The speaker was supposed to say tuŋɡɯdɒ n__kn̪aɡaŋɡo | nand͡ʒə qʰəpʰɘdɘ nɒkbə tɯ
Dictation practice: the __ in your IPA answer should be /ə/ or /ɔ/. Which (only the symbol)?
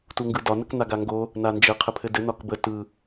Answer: ə